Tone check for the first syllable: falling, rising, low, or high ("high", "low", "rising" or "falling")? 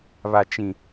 low